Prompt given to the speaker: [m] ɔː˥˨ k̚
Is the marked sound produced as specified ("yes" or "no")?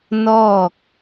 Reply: no